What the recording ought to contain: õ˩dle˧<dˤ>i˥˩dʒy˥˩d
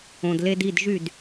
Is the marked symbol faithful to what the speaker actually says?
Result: no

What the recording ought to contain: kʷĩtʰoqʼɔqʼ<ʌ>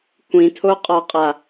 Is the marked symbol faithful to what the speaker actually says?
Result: no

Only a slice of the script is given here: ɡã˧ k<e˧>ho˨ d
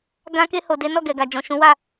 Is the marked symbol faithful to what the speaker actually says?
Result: yes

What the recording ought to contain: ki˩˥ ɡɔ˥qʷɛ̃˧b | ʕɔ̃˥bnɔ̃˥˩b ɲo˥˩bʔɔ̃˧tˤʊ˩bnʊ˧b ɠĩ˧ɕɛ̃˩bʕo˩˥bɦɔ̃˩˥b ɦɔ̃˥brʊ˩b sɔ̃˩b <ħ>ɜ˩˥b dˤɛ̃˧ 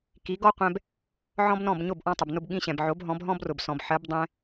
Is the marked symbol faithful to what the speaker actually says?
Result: yes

